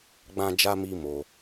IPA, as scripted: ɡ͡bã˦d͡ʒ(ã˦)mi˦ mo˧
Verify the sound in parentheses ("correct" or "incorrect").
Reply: incorrect